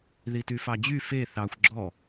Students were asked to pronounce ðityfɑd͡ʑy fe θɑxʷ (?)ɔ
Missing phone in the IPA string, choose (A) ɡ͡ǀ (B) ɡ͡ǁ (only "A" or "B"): B